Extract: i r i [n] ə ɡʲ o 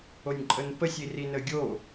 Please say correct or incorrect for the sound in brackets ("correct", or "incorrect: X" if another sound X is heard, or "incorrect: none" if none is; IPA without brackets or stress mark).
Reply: correct